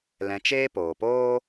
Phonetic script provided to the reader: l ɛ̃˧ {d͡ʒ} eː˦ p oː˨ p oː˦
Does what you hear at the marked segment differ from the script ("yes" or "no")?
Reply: yes